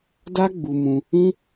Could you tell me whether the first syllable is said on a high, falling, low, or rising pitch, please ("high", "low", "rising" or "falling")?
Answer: high